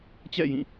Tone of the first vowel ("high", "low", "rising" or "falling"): falling